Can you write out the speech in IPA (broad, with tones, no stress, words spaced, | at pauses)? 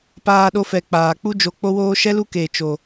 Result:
paː˧ɗo˧fɛ˨ k͡paː˨k͡pu˦d͡ʒo˧ k͡po˦woː˦ ʃɛ˦lu˦keː˨ t͡ʃo˨